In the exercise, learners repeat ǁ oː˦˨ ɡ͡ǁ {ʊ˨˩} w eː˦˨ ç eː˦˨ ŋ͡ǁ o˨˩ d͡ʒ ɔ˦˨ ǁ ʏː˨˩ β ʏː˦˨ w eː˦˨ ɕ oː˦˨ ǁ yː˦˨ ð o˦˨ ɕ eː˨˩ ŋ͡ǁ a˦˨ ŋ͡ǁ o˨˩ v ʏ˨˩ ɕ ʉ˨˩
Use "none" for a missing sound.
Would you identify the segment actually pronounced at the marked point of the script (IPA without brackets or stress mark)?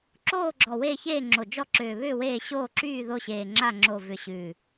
ɔ˨˩